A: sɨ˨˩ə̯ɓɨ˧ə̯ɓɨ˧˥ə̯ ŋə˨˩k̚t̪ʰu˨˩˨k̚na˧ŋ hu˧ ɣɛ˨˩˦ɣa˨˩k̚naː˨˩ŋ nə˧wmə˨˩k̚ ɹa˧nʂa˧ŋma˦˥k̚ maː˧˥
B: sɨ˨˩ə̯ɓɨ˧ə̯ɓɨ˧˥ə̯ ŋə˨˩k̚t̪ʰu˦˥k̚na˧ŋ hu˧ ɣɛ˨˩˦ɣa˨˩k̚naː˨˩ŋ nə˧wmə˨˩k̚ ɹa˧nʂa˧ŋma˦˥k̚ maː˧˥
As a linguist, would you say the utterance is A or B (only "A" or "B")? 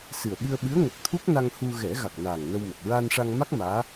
B